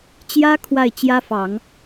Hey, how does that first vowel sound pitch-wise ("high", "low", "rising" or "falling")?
high